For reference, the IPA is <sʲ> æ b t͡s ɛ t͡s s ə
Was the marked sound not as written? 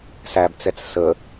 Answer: yes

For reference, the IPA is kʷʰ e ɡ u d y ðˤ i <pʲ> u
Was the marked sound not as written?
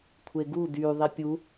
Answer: no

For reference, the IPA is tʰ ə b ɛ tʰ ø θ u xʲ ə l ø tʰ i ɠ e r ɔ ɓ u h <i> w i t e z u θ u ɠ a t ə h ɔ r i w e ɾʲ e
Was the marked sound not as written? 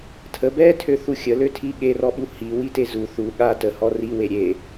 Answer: no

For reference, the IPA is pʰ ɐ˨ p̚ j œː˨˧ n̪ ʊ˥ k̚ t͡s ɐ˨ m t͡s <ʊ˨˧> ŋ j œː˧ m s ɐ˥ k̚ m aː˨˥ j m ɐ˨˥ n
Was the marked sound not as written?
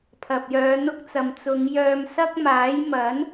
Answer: no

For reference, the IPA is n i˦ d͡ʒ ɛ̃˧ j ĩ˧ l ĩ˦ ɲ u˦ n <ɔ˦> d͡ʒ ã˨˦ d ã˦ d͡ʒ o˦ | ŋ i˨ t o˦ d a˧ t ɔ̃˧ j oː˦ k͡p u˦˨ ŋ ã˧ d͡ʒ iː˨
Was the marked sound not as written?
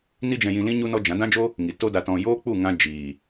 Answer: no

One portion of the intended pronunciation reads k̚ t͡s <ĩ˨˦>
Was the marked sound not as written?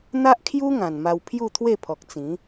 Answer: no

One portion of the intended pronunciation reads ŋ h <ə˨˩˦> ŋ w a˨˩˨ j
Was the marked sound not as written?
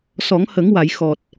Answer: no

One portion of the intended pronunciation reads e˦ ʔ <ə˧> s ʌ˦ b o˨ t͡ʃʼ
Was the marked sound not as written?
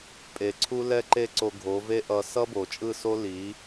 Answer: yes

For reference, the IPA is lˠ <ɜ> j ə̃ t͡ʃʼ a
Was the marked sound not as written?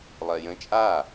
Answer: no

